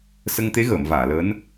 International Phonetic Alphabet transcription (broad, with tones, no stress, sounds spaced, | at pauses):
s ə˧ ŋ t̪ e˧˥ ɣ əː˨˩˨ m v aː˨˩˨ l əː˧˥ n